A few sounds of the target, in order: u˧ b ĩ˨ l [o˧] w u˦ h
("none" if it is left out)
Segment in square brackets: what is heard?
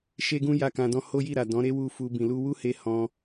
u˧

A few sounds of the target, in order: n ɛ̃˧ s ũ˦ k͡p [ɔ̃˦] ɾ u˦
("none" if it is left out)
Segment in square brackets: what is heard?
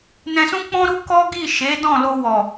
ɔ̃˦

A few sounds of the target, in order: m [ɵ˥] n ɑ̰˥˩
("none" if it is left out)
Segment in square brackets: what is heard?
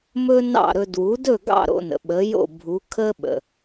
ɵ˥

